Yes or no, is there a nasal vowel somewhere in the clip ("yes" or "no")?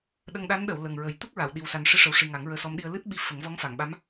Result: no